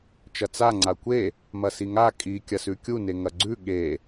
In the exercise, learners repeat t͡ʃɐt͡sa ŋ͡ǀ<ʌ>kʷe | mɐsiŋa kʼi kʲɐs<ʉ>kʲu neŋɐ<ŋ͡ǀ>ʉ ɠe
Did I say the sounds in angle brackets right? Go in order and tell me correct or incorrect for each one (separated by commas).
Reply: incorrect, correct, incorrect